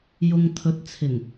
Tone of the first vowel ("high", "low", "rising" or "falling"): low